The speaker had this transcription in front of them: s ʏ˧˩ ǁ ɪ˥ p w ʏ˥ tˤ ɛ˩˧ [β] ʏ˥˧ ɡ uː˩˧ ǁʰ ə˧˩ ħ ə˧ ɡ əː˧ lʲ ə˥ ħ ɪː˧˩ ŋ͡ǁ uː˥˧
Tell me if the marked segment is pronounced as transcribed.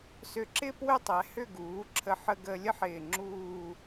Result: no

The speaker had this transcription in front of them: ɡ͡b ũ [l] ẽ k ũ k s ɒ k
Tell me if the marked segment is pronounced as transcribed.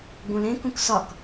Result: yes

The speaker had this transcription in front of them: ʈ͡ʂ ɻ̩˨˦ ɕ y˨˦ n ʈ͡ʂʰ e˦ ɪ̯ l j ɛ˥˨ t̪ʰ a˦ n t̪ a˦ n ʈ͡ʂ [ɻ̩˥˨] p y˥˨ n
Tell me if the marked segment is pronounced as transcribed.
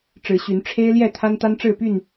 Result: yes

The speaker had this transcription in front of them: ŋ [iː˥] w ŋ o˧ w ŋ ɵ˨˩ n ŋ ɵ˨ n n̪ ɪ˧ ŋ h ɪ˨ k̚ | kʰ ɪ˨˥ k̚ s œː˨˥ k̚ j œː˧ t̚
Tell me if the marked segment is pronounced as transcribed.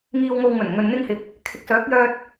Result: no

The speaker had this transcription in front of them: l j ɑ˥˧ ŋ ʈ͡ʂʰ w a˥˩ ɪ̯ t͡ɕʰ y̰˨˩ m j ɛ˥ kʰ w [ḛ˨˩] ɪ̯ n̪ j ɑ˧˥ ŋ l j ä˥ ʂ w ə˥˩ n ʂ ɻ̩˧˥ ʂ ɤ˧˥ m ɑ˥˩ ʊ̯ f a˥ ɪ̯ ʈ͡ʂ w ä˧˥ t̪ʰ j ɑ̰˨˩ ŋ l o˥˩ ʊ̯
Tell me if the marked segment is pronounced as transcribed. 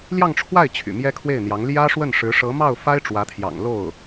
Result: no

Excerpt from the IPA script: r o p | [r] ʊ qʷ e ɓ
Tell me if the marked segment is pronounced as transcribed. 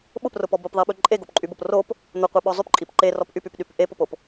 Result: no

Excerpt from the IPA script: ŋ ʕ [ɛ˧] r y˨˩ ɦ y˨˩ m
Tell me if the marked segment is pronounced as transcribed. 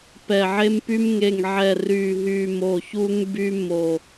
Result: no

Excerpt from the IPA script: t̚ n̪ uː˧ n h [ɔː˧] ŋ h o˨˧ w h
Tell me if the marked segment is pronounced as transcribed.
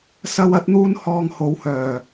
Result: yes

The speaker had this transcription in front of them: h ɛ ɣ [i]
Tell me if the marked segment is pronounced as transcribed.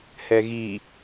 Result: yes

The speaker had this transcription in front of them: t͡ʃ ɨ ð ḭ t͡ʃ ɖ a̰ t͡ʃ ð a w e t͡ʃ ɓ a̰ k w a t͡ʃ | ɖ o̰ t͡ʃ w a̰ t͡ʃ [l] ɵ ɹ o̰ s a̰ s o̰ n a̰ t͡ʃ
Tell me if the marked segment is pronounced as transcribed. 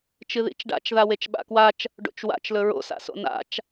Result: yes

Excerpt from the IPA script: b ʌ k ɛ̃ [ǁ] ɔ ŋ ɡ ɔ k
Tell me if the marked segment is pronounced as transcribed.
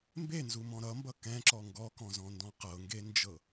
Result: yes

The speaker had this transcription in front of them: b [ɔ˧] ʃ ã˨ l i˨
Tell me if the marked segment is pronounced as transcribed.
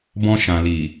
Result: no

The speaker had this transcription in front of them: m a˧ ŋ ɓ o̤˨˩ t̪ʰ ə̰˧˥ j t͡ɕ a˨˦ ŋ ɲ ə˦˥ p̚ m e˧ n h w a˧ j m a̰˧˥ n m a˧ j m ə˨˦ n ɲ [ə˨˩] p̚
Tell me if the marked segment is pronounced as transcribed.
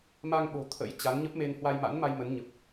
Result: yes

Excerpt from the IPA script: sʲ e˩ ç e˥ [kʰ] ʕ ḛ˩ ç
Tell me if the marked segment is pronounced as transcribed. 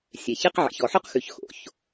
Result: no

